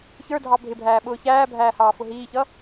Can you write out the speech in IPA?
ç ə˞ dʱ ɑ bʱ ɪ bʱ æː ɓ ʊː ç æː bʱ æː h ɑː f ʊ ɦ iː ç ʌ

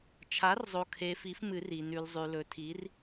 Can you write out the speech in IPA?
t͡ʃʰ a˩˥ r zˤ o˨ kʰ e˨ f i˩˥ f m ɨ˨˩˦ r i˨ n ʉ˨ l zˤ ʉ˨ l ɵ˩˥ tʰ i˩˥ r

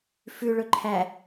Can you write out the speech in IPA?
f ʉ ɭ ɵ ǃʰ æ

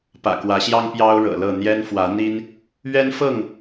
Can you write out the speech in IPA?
p ä̰˨˩ k w ä˨˦ ɕ j ɑ˦ ŋ p j ɑ˦ ʊ̯ ɻ ɤ̰˨˩ l ɤ˥˨ n̪ j ɛ˦ n f w ä˨˦ n̪ i˦ n | ɥ ɛ˦ n f ɤ˥˨ ŋ

